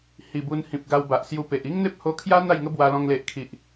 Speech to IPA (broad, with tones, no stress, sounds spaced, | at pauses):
h i˨˩ b u˧ n h ĩ˨ p̚ ɡ a˧ w b a˨ ʔ s j u˧ p e˨ ʔ i˦ ŋ n̪ e˦ p̚ h o˧ kʰ j a˦ n̪ a˥˧ j ŋ ə˦ b w a˧ l ɔ̃˧ ŋ l e˨ ʔ kʰ i˨ ʔ